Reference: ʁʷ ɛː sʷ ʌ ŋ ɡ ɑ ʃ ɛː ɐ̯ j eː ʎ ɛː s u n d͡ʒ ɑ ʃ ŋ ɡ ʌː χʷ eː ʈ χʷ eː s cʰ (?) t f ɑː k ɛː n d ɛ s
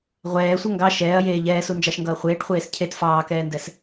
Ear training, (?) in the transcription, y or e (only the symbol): e